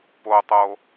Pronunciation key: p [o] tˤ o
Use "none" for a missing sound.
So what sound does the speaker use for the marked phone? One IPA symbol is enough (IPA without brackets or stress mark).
o